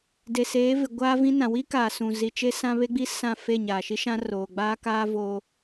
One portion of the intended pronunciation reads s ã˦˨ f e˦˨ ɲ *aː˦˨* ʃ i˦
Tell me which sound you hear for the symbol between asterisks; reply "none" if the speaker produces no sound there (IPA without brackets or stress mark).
aː˨